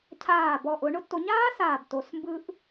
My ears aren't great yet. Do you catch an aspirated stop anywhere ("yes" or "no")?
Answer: yes